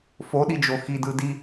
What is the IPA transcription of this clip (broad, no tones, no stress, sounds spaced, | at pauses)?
f o ɗ i d͡ʒ o x i d ɯ d i